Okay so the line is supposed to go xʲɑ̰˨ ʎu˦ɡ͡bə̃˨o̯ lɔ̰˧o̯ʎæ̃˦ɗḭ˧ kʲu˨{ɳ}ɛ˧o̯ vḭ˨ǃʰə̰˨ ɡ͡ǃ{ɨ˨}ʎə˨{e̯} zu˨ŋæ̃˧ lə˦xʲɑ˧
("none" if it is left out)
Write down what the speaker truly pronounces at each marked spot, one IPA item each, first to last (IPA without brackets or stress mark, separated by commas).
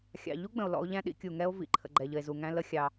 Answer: ŋ, ɛ˨, e̯